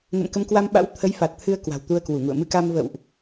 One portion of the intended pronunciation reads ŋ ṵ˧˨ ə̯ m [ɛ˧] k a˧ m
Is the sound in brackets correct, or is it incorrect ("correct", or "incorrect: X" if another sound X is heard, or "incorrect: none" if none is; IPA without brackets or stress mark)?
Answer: incorrect: ɨ˧